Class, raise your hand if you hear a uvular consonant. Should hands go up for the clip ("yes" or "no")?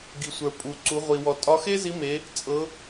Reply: yes